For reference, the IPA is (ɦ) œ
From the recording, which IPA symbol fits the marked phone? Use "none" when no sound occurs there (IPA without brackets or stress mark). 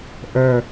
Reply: ʔ